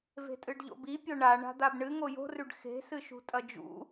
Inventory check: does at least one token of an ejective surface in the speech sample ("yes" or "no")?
yes